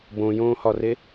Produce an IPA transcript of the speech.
bõjõːhɒre

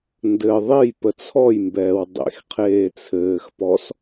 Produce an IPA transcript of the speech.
ndɘ ðˤejpə t͡sʰɔjmbɛːw dˤḛx qʰeːt͡sʰɘːxpɔs

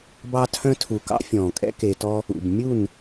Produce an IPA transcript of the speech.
bɑ˧tʰœ̃˧tʰu˨ kɑ̰˦fʲɔ̃ː˨kʼɛ̰˦ ke˧tɔ˦ | ṵ˨b mʲu˦˨n

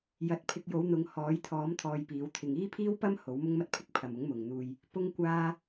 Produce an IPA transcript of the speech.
jɐ˨˥t̚pʰɪ˧k̚ jo˨˥wn̪ʊ˨˧ŋhɔː˨˥jt̪ʰɔː˨˥m t̪ʰɔː˧jpiː˨˥wt̪ʰɪ˧ŋ iː˥pʰiː˥wpɐ˥m ho˨˥wmʊ˥ŋmɐ˥t̚pʰɪ˥k̚ pʰɐ˨mʊ˨˥ŋ mʊ˨ŋn̪uː˧j | pʊ˥ŋkʷaː˥

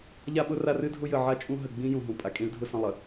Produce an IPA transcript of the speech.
ʎa˦ɓʊ˦ ra˦rɨ˦dʱʊ˦ jə˨ ʕa˦t͡ʃʼũ˦ ɦə˨ ɡ͡bĩ˦ jũ˨ɦũ˨ pʼa˨kʼĩ˨˦ɭdʱʊ˦˨sə̃˦˨ lˠə˨

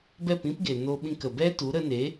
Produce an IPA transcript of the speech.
bɛ˦˨pĩ˦pɡe˨ no˧ɓĩ˧k ə˨bɛ˦ tu˨˦ɾə˧ne˨˦

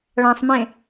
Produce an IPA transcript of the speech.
ɭãsˤmẽ

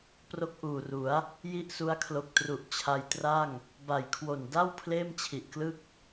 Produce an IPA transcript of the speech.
pro˥˩k̚ʔuː˨˩ru˩˦a̯ | ji˥˩ʔsu˦˥a̯kʰlo˨˩k̚ tru˨˩ʔt͡ɕʰa˧jtra˥˩ŋ | ba˨˩jkʰwo˨˩n da˥˩w pʰleː˥˩m t͡ɕʰi˨˩ʔklɯ˥˩k̚

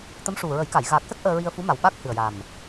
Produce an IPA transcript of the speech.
t̪ə˧˥mʂu˨˩ɹə˨˩˦jka˨˩˨j ɣa˨˩k̚sə˦˥k̚ ʔəː˧ɹi˧ə̯fu˧˥ma˨˩w ɓa˦˥k̚hɨ˨˩ə̯ja˨˩m

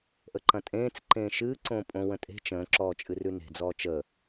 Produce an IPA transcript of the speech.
ʔəǃɐ̃tʼẽːt͡s ǃẽːʃɨː ǀõːpʼõ wə̃tʼe̤ t͡ʃə̃ː ǁɔːt͡ʃʼɨrʉne̤ d͡zɔːt͡ʃə

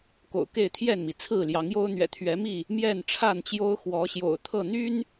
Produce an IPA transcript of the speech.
ko̰˨˩ʊ̯ke˥˨ɪ̯t̪ʰjɛ˥˨nmi˩ t͡sʰɹ̩˥˨ljɑ˨˦ŋjo˦ʊ̯ n̪ɥɛ̰˨˩t̪ʰɥɛ˨˦mi˥˨ | mjɛ˥˨nʈ͡ʂʰa˥˨n t͡ɕjo˦ʊ̯xwɔ˨˦ɕjo̰˨˩ʊ̯t̪ʰɤ˥˨ n̪y˦n

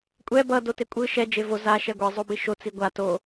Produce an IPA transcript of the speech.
kʷʼɛ bʌ dotekʷʼɯ ʃɛ d͡ʒevo za ʃɛɡʷe zˤobiʃo t͡siɡʷa to

